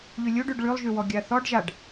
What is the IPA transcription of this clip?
ʎ y lʲ u ɖ y ɖ ɭ y lˠ ʒ y w ɔ ɡʲ a θ ɔ ɖ ʒ a ɖ

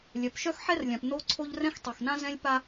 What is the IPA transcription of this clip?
lʲ œ˩ p ʃ œ˥ x ħ ɛ˥ r lʲ ã˩ p n o˥ ǀʰ o˥ ʎ r ɛ̃˥ x tˤ ɛ˩ x n ã˥ z ɛ̃˥ lʲ p a˥

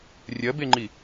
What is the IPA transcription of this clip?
rʲ ɐ b e ŋ͡ǃ i

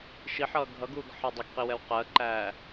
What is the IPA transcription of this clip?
ʃ i ħ ʌː ɡʱ ʌ ɡ uː ɡ ħ ɜ dˤ ɪ ɡ q i w ɛ w q ɜ ǃ æː

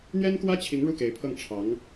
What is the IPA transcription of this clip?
n̪ ɥ ɛ˥ n k w ä˥ t͡ɕʰ i˧˥ ŋ ɻ u˥˩ k e˧˥ ɪ̯ pʰ ɤ˥˩ ŋ ʈ͡ʂʰ ɑ˧˥ ŋ

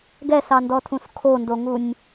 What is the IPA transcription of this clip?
ɡ ɛ s ɑ n d ɔ tʰ ũ s kʰ o n d o ŋ u nʲ

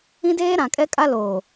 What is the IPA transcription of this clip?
ĩ˦ d eː˦ ɾ ã˨ kʼ ɛ˦ kʼ a˦ l oː˨

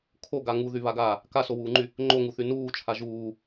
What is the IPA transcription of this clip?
kʰ o ɡ a ŋ u ð y β a ɡ aː | k a s o w uː ŋ͡ǃ y | ŋ͡ǃ o ŋ u θ y n uː t͡ʃʰ a ʒ uː

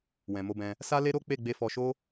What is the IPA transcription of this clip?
w ɛ̃˨ m o˧ b ɛ̃˧ | s a˦ l e˦ ɾ o˦ k͡p e˦˨ ɡ͡b e˧ f ɔ˧ ʃ o˦

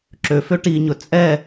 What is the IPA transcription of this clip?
ǁ ø f ø ʈ i ɲ ɵ t͡sʼ ɛ

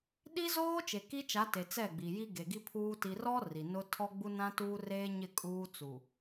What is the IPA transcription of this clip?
ɗ i˦ z oː˦ t͡ʃ e˨ k i˦ t͡ʃ a˨˦ t e˨ t͡s ɛ˦˨ ɡ͡b i˨ j i˦ ɡ e˨ ɡ i˦ pʰ uː˦ t i˨ r ɔ˦ r i˨ n ʊ˦ tʰ ɔ˦ ɡ͡b u˦ n ã˦ t uː˦ r eː˦ ɲ ɪ˦˨ kʼ uː˦ t͡s u˨

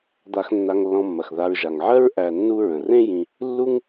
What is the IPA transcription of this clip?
d̪ a˨ x nː a˨ ŋ lː ɔ̃˨ mː ɐ˩ x ð a˨ ɹ ʒ a˩ ŋ ʕ ɜ˥ ɹ ʔ æ˨ nː u˦ ɹ ə̃˩ r ẽ˥ j ĩ˨ | lː u˦ ŋ

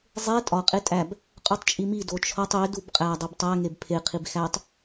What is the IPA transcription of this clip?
zˤ e tʼ ɒ qʼ e tʼ æ b | qʼ u tˤ t͡ʃʼ i m i d o t͡ʃʰ ɒ tˤ e d u b qʼ æ dˤ e b tˤ æ ŋ e b pʰ e qʰ i b x æ tˤ

